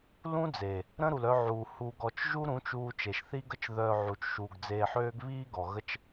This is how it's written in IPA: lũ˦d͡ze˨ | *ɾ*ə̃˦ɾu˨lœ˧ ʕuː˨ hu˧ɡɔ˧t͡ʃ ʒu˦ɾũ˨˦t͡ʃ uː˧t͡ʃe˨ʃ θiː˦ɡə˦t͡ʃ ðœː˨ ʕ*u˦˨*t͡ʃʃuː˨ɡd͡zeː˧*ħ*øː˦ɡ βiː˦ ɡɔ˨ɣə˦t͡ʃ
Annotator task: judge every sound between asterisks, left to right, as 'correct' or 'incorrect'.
correct, incorrect, correct

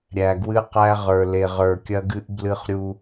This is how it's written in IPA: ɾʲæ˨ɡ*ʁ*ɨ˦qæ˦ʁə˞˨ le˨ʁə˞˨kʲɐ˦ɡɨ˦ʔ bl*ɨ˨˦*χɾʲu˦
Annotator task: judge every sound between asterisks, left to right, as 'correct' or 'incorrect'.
incorrect, incorrect

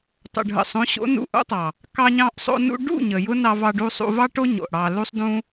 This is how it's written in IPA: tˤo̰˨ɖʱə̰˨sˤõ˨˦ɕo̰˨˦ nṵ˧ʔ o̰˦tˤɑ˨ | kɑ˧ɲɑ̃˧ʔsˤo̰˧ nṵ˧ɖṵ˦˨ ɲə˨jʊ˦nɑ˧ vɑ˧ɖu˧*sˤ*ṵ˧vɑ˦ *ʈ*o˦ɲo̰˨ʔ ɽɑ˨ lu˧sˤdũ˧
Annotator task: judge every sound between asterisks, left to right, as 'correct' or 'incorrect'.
correct, correct

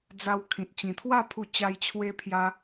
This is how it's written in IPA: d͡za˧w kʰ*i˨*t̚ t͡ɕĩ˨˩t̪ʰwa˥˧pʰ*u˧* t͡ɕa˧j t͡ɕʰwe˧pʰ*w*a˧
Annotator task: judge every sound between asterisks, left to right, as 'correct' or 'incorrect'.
incorrect, correct, incorrect

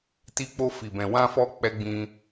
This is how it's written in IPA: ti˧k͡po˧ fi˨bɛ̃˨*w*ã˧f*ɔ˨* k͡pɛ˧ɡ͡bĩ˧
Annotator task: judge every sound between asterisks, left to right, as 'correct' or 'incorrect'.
correct, incorrect

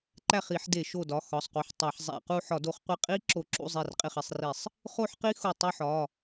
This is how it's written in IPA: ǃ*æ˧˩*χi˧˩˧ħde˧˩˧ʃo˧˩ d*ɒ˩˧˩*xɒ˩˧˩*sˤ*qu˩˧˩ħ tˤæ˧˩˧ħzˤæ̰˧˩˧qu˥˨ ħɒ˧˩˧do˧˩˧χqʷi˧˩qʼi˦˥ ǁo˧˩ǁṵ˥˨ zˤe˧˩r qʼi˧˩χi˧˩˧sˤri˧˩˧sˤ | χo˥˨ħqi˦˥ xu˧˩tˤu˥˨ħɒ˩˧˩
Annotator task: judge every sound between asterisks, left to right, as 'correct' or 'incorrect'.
incorrect, correct, correct

